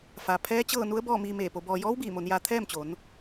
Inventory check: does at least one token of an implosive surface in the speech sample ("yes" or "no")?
no